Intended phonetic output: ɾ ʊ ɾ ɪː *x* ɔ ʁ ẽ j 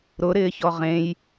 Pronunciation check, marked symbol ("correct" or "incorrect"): incorrect